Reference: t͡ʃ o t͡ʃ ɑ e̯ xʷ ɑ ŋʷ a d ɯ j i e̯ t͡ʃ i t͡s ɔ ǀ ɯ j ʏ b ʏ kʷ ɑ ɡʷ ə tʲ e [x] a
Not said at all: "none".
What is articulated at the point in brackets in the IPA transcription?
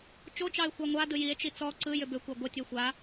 xʷ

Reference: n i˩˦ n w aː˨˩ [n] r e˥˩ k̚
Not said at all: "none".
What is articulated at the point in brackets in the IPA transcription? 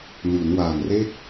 n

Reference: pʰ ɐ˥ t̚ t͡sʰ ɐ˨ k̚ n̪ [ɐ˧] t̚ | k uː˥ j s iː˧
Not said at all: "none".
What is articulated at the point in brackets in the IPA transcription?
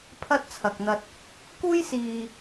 ɐ˧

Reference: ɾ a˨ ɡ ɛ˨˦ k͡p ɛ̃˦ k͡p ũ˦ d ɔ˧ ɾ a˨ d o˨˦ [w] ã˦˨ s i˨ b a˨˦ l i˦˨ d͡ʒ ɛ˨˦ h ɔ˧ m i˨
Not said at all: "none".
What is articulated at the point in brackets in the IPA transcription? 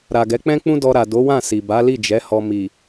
w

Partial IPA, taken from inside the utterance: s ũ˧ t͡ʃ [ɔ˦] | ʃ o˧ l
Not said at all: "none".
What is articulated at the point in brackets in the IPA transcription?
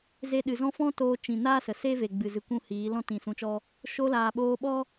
ɔ˦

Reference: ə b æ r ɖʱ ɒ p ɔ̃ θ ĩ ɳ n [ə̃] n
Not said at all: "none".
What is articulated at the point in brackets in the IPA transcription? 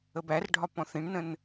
ə̃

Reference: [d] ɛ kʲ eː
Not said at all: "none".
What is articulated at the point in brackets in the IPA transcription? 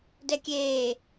d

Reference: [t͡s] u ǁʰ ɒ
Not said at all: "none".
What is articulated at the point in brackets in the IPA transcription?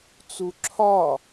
t͡s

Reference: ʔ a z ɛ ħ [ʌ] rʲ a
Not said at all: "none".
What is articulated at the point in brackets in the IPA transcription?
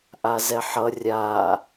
ʌ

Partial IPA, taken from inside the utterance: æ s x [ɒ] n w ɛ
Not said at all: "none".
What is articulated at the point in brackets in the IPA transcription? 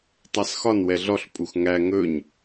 ɒ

